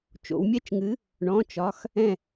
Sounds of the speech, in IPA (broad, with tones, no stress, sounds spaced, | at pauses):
t͡ʃ o̰˩˧ w mʲ ɛ˥˨ t͡ʃ ŋ ɨ˨˥ | ɳ ɔ̃˩˧˩ t͡ʃ ɒ˩˧˩ x | ɛ̃˧˩